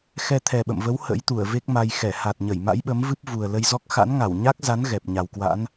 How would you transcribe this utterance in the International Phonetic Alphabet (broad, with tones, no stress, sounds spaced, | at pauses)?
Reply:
x ɛ˧ t̪ʰ ɛ˨˩ ɓ ə̰˧˨ m v ə˨˦ w h ə̰˧˥ j t̪ u˧˩ ə̯ v e˦˥ k̚ m a˧ j x ɛ˧˩ h a˨˩ t̚ ɲ ə˧˩ j m a̰˧˥ j ɓ ə˨˦ m v ɨ˦˥ p̚ v u˨˩ ə̯ l ə˧ j z ɔ˦˥ k̚ x a̰˧˥ n ŋ a˧˩ w ɲ a˦˥ k̚ z a˨˦ n ɣ ɛ˨˩ p̚ ɲ a˨˩ w k w a̰˧˥ n